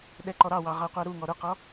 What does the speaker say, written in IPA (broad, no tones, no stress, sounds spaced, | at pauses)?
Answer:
ɗ ɛ ǃ ɔ ɾ ɑ w ɑ ʁ ɑ qʷ ɑ ɾ u ŋ ɔ ɾ ʊ q ɔ